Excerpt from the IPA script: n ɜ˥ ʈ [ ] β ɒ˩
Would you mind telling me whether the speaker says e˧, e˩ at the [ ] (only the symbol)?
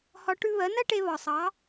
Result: e˧